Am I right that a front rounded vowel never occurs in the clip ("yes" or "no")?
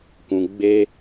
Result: yes